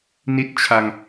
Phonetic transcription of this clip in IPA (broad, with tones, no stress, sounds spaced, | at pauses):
n i˦˥ t̚ t͡ɕʰ a˧ ŋ